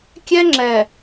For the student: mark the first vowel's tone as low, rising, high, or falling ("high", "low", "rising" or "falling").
high